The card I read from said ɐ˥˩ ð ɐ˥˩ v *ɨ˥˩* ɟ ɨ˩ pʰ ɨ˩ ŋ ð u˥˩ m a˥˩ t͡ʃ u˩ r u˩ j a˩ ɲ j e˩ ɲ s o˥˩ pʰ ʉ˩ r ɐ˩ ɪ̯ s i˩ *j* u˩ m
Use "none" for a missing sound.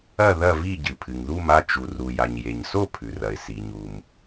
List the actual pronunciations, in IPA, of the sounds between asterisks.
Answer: i˥˩, ɲ

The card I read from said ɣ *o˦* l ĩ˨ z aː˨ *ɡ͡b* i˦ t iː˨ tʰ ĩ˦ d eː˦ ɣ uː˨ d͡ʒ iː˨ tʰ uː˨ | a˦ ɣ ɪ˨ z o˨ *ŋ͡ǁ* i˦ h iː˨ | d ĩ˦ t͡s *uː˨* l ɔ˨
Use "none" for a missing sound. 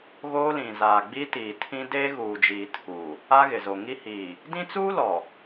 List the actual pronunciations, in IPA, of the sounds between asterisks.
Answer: oː˦, ɡ͡b, ŋ, uː˦

